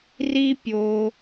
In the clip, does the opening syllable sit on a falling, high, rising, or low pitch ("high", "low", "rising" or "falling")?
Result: high